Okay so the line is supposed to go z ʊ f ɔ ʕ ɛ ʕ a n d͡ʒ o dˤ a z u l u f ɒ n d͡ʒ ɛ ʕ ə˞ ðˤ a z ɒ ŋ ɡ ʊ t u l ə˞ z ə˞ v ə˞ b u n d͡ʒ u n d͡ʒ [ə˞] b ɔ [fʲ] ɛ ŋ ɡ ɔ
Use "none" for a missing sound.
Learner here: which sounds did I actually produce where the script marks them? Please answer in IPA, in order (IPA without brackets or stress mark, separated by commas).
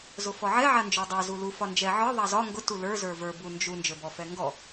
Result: ə˞, f